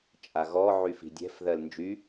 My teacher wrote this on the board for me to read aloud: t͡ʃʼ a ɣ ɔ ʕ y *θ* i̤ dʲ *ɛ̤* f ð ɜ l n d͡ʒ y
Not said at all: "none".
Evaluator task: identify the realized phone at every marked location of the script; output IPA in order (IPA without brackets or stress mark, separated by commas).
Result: f, ɛ̤